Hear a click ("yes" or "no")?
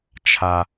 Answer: no